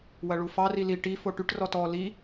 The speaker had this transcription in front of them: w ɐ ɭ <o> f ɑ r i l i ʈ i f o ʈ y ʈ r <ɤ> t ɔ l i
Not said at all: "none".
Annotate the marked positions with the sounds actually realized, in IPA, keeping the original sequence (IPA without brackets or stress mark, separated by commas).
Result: u, ɔ